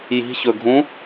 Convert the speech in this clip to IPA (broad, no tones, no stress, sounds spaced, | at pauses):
j i̤ ç ɵ ɡʱ ũ